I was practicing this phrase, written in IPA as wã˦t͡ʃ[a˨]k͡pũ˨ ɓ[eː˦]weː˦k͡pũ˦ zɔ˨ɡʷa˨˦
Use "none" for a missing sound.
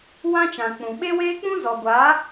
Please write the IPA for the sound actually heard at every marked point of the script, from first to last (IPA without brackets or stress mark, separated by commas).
ã˨, e˦